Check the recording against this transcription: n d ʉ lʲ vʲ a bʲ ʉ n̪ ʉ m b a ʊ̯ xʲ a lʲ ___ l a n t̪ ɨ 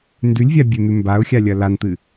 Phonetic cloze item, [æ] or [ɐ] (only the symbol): ɐ